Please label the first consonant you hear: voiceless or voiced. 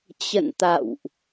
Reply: voiceless